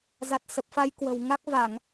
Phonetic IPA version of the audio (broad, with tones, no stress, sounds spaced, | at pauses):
z a˨˩ t̚ s ə˨˩ p̚ f a˨˦ j k w ə̤˨˩ w ŋ a˦˥ k̚ v a˧˩˨ ŋ